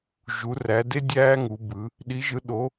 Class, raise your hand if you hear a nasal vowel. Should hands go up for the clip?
no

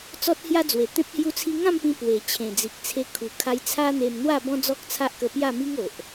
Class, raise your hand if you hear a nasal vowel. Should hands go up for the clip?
yes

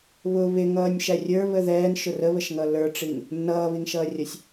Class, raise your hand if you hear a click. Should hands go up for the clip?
no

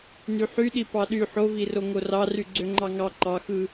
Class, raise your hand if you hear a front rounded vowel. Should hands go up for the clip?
yes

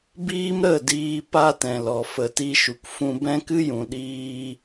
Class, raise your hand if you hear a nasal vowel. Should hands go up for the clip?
yes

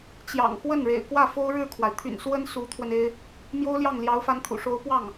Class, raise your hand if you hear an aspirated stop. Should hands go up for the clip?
yes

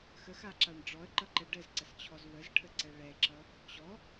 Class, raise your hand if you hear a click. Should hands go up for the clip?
yes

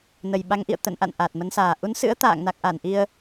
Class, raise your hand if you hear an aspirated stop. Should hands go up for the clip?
no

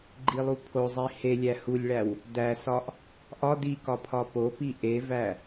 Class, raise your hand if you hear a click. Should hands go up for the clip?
yes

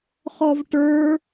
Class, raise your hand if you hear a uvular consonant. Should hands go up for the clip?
yes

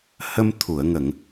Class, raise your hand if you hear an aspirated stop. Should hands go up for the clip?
yes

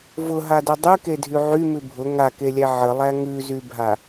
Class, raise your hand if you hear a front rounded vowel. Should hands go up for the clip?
yes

